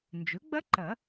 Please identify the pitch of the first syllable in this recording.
rising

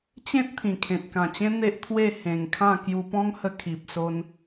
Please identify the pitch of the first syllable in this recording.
high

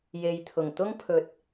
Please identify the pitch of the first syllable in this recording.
low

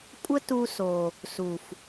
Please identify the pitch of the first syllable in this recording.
high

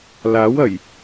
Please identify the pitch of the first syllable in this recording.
rising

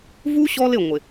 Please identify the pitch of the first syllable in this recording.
high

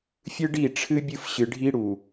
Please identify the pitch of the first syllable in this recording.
high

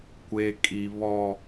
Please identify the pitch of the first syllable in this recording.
high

